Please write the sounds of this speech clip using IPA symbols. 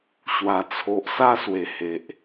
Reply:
ɕwa˨˩ t͡sʰo˨ʔsa˥˧swe˨˩ he˨ʔ

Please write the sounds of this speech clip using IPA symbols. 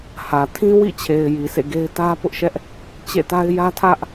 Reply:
hä˨ tʰĩ˦wḭ˦˨t͡ɕʰe˨ɪ̯ ji˨sʰḛ˦˨ɡe˦ɪ̯ tä˦pʊ˦ʔʃɛ˦ʔ | t͡ɕḛ˦˨ta˦ɪ̯ jä˦tʰä˦ʔ

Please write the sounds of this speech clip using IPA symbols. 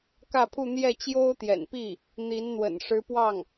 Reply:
kä˥˧pʰu˥˧ n̪jɛ˥˩t͡ɕjo˥ʊ̯t̪jɛ̰˨˩npi˥˩ | n̪i˧˥n n̪wə̰˨˩nʂɻ̩˧˥pwɑ˥˩ŋ

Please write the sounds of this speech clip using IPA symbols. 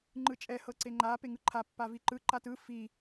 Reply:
ŋ͡ǃɯt͡ʃʼɛ hɤǀeŋ͡ǃa peŋɯǃʰa pːaviǃɯ ǃatɯ fi

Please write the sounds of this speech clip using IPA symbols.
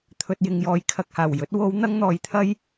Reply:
t̪ʰɵ˨t̚jɪ˨ŋjɔː˨j kʰɐ˨k̚haː˨˩wjɵ˨˥t̚ wo˨˧wn̪ɐ˧ŋ n̪ɔː˨jt̪ʰɐ˥j

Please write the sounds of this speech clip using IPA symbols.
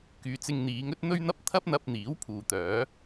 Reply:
kyː˨˧t͡sɪ˧ŋn̪iː˨˧ŋɵ˥t̚ n̪ɵ˥ɥn̪ɐ˥p̚ t̪ʰɐ˥p̚n̪ɐ˧p̚n̪iː˨˥w pʰuː˨t̪œː˨˥

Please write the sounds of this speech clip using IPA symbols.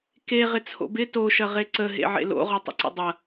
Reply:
ke ʁɪt͡sʰo̰bɪ to ʃɐʁeǀə ɦḛʕḛlo̰ ʁɔtˤə̰ǀə̰dˤɐ

